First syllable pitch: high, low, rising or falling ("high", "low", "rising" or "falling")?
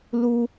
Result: high